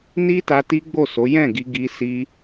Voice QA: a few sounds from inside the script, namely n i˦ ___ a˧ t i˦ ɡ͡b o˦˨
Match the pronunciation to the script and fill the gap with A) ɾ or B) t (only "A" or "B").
B